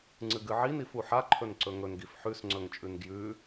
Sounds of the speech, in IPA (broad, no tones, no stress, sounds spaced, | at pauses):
ŋ͡ǀ ɨ ɡ ɨ ʕ i n i f u ħ a ǃʰ ɵ n ǀ ɵ ŋ ɵ n ɡ i f ħ ʉ s ŋ͡ǀ ɵ ŋ t͡ʃʼ ʉ n ɡ j ʉ